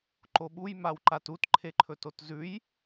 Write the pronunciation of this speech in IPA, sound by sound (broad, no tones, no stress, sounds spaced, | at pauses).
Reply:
ǃ o ɓ u j m a w ǃ a t u t ǃʰ e ǃʰ ɵ t o t z ʉ j